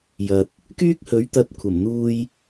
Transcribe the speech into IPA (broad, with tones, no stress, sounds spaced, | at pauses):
j ɐ˨ t̚ | k yː˥ k̚ h ɵ˨˥ ɥ t̪ ɐ˧ t̚ kʷʰ ɐ˨˩ m n̪ uː˧ j